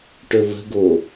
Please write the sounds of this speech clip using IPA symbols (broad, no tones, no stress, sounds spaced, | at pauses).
ʈ ɵ β ə̤ ɡ o